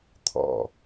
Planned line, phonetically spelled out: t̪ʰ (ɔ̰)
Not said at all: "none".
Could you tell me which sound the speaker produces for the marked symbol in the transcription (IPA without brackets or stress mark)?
ɔ̰